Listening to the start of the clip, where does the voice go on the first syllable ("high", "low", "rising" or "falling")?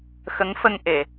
rising